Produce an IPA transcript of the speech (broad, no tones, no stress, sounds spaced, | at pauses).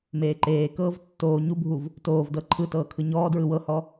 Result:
m eː ǃ eː k ɤː v tː oː ɲ u bʱ u v | t oː v d ɤ ǃʰ ɯ t ɤː kʰ ɯ ɲ ɔː d ɹ ɯ w ɤ h ɔ